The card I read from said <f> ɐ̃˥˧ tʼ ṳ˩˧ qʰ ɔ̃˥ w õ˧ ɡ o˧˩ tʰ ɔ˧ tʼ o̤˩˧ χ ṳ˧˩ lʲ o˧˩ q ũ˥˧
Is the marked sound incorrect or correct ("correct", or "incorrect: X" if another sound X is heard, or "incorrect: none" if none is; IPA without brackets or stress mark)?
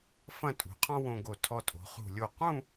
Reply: correct